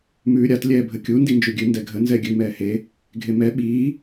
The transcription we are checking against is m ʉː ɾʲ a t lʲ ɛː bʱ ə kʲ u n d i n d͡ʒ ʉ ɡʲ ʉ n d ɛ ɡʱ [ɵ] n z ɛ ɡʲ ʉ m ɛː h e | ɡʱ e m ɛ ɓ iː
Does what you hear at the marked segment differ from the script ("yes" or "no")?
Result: yes